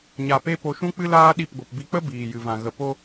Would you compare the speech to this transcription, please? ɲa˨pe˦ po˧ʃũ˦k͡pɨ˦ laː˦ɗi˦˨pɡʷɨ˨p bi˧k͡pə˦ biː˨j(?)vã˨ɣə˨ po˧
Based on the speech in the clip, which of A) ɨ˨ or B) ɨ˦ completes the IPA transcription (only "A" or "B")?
A